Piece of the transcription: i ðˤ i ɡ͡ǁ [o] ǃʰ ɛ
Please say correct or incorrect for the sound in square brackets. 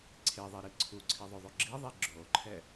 correct